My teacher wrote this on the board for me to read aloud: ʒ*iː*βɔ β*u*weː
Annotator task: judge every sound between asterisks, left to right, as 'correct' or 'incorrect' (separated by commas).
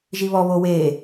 incorrect, incorrect